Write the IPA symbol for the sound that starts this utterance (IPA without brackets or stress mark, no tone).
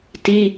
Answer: t